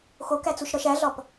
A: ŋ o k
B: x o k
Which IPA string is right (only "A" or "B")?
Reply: B